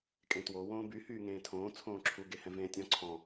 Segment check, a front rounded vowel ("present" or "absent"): present